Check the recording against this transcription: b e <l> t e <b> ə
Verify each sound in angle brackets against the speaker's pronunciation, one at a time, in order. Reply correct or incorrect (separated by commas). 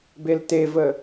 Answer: correct, incorrect